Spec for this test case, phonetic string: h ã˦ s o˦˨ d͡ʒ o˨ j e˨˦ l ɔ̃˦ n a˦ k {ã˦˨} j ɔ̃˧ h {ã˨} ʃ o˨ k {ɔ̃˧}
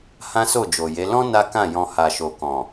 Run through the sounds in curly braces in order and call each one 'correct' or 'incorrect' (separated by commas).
correct, incorrect, incorrect